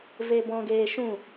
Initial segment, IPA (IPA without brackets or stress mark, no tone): v